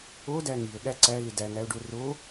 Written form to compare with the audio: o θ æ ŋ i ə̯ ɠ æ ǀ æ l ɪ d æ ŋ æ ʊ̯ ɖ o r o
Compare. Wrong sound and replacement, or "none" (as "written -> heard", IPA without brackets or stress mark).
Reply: θ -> d